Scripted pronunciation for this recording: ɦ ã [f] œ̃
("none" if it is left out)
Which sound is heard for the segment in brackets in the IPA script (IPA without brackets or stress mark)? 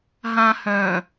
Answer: h